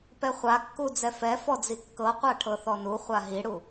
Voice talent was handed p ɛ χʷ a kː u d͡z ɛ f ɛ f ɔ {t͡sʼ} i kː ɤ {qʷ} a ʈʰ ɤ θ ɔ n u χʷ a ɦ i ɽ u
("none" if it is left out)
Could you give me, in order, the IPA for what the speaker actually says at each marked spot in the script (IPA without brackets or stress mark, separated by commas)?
d͡z, qʷ